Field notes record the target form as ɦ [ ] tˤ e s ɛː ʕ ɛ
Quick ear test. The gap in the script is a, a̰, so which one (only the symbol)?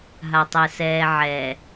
a